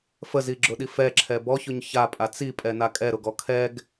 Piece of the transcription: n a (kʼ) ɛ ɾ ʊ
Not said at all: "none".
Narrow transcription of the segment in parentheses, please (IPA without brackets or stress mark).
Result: kʼ